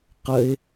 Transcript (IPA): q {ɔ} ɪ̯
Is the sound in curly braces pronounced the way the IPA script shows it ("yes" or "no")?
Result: no